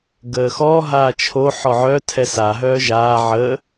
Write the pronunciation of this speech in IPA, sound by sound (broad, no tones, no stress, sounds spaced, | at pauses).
ɡ əː x ɔ ɦ aː t͡ʃʰ o ħ ɔ ʕ œ tʰ ɛ s a ɦ œː ʒ aː ʕ ə